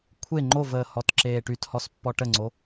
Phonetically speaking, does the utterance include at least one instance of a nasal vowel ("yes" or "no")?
no